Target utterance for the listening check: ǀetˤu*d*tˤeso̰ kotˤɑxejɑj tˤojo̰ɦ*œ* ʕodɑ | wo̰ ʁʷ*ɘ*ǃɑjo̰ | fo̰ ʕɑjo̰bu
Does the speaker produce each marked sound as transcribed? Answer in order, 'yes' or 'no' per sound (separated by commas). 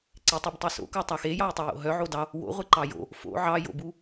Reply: no, yes, no